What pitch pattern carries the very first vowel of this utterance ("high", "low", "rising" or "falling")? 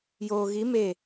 low